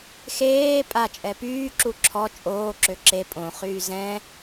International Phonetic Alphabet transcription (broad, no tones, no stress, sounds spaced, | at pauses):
x eː pʼ a t͡ʃʼ ɛ p yː ǁ u ǁʰ ɔ t͡ʃʼ oː ǁ ø ǁ e pʼ õ χ yː z ɛ̃